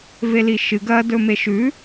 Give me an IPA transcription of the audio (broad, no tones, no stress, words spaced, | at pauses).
veliʃɨ ɡɐdɵ meʃʉ